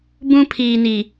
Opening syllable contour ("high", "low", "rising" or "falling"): high